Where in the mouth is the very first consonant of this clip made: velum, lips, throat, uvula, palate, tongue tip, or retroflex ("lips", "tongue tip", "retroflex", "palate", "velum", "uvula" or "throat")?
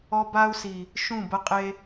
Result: lips